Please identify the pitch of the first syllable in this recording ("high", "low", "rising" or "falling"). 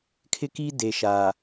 high